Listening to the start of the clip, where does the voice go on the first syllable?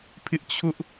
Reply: high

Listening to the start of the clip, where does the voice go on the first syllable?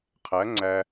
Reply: rising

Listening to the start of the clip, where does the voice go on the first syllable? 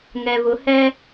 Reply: low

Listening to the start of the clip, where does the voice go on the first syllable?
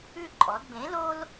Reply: falling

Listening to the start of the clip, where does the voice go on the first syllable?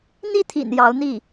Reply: falling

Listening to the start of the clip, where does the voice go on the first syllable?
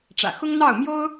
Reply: low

